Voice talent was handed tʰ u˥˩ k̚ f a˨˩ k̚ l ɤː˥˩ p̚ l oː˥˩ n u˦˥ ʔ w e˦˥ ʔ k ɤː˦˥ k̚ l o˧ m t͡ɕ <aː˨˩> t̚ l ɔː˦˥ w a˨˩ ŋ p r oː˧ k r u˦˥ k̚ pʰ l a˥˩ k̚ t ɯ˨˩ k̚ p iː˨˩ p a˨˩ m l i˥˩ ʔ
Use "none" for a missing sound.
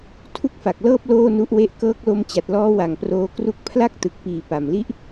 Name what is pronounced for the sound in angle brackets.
a˨˩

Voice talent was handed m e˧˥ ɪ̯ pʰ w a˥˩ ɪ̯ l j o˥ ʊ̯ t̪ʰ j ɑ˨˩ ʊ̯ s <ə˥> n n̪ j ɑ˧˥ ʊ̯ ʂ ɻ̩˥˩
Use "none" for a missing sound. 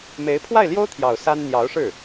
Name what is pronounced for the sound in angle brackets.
a˥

